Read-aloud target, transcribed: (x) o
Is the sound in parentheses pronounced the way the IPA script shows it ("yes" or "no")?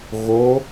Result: no